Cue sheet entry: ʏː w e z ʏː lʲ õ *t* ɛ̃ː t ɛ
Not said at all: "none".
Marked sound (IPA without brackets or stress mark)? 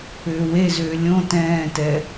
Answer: t